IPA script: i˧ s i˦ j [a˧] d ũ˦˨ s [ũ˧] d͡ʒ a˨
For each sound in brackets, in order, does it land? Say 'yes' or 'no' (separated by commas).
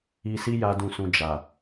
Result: no, yes